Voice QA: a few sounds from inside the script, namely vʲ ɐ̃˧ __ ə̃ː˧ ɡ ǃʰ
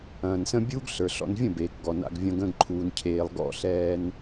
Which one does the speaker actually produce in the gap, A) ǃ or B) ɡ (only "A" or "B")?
B